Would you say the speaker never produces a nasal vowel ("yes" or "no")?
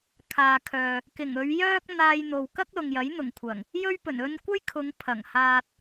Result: yes